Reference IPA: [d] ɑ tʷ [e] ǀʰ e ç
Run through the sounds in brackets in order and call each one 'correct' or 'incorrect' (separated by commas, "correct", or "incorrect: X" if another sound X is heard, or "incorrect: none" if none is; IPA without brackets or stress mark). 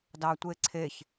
correct, correct